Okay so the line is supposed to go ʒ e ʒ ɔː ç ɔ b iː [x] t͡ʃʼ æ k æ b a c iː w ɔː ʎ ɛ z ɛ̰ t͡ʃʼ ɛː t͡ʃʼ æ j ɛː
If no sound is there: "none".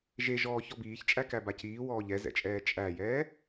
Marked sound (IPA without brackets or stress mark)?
ç